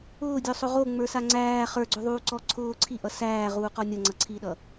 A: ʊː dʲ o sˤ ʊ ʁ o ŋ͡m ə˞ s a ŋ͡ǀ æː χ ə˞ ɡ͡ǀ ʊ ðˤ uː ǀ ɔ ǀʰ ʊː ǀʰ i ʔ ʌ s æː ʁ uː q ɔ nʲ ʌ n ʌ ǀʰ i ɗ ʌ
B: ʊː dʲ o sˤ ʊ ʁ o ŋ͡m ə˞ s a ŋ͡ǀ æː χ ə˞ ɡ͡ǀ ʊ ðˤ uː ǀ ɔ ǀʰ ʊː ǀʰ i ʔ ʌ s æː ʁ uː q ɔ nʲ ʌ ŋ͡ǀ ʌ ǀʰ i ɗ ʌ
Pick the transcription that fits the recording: B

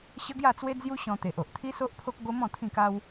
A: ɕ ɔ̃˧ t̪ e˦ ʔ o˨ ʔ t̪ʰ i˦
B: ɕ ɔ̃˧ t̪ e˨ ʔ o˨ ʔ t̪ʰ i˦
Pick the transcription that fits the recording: B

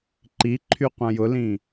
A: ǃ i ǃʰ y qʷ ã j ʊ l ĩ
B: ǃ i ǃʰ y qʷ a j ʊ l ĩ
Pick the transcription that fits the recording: A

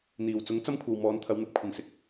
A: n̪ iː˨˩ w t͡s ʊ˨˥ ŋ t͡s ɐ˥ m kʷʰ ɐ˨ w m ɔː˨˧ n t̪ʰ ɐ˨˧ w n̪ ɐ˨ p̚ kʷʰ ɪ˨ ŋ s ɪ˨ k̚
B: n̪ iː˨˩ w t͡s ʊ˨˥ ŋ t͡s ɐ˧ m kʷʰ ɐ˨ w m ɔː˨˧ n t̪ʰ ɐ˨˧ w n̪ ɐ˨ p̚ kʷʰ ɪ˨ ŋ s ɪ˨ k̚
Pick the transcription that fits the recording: A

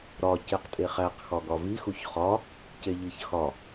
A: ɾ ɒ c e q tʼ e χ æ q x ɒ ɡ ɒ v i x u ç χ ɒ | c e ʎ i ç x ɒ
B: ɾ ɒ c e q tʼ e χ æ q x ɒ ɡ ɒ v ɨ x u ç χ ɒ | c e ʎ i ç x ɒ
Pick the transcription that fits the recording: A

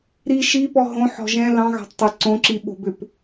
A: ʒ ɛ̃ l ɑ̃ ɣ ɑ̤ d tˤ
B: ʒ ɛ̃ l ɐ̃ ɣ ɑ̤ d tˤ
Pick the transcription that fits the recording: A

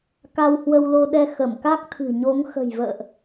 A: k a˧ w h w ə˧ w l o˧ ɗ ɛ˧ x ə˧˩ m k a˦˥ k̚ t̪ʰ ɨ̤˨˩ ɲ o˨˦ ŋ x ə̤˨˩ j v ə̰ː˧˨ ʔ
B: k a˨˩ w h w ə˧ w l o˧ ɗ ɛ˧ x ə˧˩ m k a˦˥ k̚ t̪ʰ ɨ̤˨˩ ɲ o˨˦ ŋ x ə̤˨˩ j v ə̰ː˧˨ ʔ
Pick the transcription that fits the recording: A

